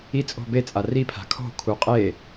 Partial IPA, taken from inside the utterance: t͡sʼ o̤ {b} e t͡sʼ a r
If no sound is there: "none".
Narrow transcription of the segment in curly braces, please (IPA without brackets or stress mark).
b